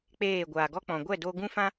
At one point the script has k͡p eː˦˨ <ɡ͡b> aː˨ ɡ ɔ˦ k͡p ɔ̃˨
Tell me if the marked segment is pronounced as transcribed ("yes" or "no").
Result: no